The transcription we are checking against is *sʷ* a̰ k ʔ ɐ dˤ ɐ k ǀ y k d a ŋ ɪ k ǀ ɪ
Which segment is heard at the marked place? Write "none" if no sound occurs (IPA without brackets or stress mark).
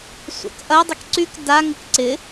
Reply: sʷ